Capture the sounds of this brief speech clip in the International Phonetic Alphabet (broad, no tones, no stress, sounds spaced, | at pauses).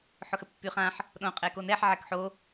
ħ ʊ x ə pː y χ ã ħ | ɗ õ qʼ e k o n ɛ ħ ʕ ɛ k ħ o